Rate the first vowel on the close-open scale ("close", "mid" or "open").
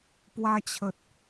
open